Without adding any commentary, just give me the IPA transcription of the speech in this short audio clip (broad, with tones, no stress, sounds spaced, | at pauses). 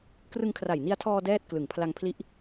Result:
k r ɯ˧ ŋ kʰ r a˨˩ j n i˧ a̯ tʰ ɔː˧ d ɛː˥˩ t̚ k l ɯ˨˩ ŋ pʰ l a˧ ŋ pʰ l i˦˥ ʔ